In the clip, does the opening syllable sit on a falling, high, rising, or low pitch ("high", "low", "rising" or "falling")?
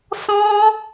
high